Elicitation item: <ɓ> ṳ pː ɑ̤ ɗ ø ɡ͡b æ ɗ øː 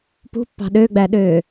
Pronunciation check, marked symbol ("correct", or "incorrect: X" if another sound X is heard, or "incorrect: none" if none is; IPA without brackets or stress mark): incorrect: p